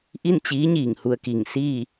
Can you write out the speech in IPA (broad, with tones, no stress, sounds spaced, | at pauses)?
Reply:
ʔ i˥˨ n t͡ɕ iː˧˥ ɲ iː˧˩ ŋ h u˧ ə̯ k i˧˩ ŋ s iː˥˨